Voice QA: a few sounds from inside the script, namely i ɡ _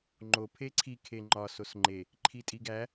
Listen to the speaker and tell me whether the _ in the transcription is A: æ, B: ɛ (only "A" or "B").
A